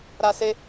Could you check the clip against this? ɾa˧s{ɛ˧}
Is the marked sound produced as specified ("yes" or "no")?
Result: no